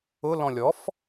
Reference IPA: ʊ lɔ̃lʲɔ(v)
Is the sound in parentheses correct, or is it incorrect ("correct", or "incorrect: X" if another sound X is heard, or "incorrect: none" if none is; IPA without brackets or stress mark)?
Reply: incorrect: f